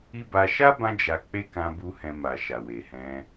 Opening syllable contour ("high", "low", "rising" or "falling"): high